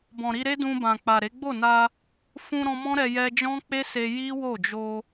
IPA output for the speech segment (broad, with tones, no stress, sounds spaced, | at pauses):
b ɔ̃˨ ɾ i˧ ɾ e˦ d ũ˧ b ã˨ k͡p a˨ ɾ e˨˦ ɡ͡b o˦˨ n a˧ | f ũ˧ ɾ ɔ̃˧ m ɔ̃˦ ɾ ɛ˧ j ɛ˧ d͡ʒ ɔ̃˦ k͡p e˦ s e˧ j i˦ w o˦˨ d͡ʒ o˧